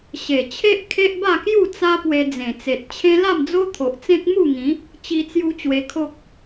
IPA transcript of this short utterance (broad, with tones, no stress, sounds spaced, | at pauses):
ɕ e˨˩ t͡ɕʰ e˦ ʔ kʰ e˦ ʔ b a˥˧ k j u˥˧ t͡s a˦ p w e˧ d͡z ẽ˨˩ t͡s e˨ t̚ t͡ɕʰ ẽ˦ l a˥˧ m d͡z o˦ t̪ʰ o˨ ʔ t͡s ẽ˦ k̚ m u˥˧ ŋ ĩ˨˦ | t͡ɕ i˧ t͡s j u˧ t͡ɕ w e˧ kʰ o˦ k̚